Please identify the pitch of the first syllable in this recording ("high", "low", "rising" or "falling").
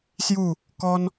falling